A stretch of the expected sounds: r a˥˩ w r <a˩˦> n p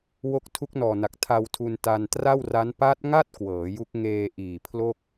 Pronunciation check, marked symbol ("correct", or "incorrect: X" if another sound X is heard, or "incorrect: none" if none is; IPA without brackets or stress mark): incorrect: a˦˥